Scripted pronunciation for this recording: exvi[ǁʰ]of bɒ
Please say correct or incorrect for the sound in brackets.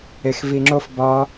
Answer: incorrect: ŋ͡ǁ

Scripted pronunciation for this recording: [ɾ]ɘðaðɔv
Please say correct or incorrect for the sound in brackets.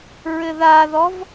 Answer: incorrect: ɹ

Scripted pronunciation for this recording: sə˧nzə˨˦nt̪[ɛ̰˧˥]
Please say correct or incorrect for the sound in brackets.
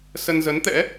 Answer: correct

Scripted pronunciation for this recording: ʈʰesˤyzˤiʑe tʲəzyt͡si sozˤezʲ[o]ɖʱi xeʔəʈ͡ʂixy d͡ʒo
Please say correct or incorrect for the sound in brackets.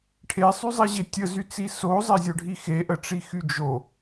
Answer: correct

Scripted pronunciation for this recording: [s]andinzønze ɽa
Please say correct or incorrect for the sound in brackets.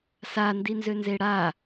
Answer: correct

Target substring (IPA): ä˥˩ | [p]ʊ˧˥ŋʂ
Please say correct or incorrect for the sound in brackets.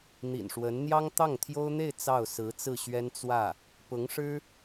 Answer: correct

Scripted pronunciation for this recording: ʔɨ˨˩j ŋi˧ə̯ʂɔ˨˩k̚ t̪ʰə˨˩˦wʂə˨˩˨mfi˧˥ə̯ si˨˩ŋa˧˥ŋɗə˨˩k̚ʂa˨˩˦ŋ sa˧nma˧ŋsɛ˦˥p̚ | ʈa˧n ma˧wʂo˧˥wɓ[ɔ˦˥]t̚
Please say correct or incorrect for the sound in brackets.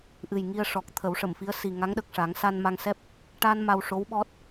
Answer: correct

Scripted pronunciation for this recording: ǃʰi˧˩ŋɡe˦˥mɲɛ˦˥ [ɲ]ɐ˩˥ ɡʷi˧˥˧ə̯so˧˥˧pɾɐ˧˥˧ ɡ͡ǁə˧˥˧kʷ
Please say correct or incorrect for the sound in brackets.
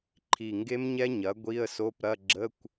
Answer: correct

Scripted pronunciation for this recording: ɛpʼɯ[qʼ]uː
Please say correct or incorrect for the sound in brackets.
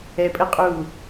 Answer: correct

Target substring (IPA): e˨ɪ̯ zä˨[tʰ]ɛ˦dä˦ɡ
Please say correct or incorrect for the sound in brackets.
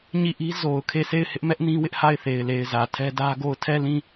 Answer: correct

